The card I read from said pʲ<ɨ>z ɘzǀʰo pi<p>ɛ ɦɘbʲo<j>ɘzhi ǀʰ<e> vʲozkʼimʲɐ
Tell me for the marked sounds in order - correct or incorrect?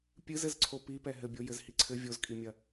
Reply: correct, correct, correct, incorrect: ɘ

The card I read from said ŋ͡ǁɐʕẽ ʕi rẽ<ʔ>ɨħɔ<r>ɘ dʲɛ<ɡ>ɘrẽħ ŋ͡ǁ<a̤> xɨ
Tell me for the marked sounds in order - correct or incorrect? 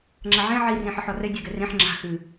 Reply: incorrect: ħ, correct, correct, correct

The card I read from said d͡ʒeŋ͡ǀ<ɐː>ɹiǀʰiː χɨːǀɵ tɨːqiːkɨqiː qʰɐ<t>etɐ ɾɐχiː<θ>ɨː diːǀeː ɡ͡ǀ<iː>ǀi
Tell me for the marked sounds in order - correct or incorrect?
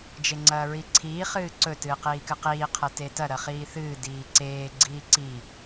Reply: correct, correct, correct, correct

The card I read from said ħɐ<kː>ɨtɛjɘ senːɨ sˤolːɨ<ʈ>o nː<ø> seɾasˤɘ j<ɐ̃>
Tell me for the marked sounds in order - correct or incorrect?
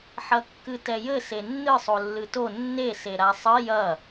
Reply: correct, incorrect: t, incorrect: e, incorrect: ɐ

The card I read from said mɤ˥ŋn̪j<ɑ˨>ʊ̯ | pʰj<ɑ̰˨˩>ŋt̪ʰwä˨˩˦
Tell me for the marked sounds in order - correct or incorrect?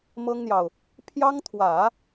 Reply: correct, incorrect: ɑ˥

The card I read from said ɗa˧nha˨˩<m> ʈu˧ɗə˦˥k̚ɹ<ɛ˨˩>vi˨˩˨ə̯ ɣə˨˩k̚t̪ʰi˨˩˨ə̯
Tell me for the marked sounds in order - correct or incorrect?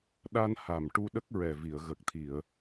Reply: correct, correct

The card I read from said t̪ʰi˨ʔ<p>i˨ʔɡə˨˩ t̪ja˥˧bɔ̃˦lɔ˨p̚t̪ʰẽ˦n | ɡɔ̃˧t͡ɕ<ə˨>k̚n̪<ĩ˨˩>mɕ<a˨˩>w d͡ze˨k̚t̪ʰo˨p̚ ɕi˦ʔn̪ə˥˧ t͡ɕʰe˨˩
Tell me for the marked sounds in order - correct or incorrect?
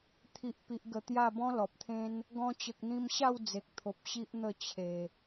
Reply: correct, correct, incorrect: ĩ˧, incorrect: a˥˧

